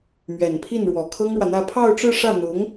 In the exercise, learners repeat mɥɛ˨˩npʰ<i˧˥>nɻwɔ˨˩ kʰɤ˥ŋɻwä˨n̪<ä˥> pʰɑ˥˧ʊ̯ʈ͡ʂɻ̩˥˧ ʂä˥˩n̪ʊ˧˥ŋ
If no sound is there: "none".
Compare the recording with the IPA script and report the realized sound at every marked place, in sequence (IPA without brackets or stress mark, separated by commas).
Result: i˥˩, ä˥˧